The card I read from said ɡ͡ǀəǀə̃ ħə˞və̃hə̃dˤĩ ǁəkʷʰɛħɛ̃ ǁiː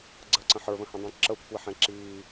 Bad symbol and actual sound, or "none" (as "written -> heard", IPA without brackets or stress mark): none